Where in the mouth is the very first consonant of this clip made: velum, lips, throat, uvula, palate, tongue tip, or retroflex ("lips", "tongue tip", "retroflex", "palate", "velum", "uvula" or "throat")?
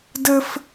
tongue tip